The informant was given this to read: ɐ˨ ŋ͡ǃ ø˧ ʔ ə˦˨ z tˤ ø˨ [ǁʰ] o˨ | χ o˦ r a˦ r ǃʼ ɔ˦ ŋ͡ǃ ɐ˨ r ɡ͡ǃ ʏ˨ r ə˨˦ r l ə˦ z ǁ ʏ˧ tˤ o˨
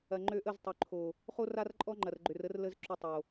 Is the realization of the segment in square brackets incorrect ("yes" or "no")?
yes